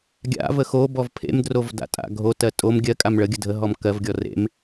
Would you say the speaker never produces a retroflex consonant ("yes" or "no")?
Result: no